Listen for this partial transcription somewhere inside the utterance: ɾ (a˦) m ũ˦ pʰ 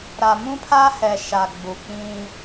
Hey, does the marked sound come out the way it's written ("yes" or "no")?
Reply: no